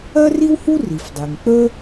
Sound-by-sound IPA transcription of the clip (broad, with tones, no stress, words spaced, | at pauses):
ɜ˥ri˥whu˥ ri˩fdˤe˩ŋ k͡pə˥